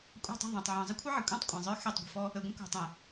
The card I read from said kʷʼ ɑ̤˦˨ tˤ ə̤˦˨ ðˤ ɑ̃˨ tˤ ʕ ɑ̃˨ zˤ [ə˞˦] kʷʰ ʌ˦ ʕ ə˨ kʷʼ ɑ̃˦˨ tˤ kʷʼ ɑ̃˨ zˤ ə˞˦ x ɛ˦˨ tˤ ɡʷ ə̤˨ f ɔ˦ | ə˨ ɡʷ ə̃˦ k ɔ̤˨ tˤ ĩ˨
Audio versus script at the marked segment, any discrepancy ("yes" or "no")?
yes